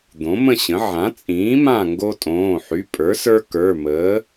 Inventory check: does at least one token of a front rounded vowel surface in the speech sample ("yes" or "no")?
yes